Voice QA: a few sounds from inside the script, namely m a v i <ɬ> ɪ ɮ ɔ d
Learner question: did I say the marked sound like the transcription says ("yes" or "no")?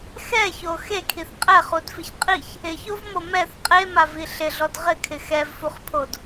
yes